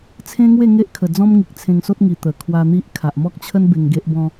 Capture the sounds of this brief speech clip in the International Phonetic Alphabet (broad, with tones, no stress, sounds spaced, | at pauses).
t͡sʰ ẽ˦ ŋ w e˥˧ ŋ e˦ ʔ kʰ ə˨˩ d͡z ɔ̃˦ m ŋ i˨ k̚ t͡sʰ ẽ˧ ŋ s o˦ t̚ ŋ i˨˩ t̪ ə˨˩ kʰ w a˧ n̪ i˦ ʔ kʰ a˨ ʔ m ɔ˦ k̚ t͡ɕʰ ə˦ n b e˧ ŋ ɡ e˦ ʔ b ɔ̃˦